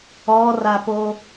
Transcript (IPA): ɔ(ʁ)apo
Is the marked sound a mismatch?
yes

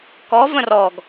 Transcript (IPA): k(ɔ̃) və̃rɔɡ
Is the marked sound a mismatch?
yes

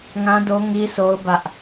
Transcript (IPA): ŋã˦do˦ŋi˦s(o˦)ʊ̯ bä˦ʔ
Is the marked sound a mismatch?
no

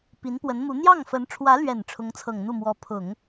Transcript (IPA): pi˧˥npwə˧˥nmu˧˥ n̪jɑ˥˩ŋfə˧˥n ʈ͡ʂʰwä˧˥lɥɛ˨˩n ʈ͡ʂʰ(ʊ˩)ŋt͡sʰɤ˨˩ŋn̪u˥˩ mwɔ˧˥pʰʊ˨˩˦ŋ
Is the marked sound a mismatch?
yes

